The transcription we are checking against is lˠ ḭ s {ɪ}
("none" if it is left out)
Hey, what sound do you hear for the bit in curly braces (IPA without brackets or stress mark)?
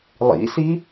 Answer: i